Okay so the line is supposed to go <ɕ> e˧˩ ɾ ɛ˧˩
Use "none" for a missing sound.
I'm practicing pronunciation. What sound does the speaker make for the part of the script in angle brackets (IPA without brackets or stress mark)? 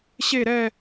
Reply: ɕ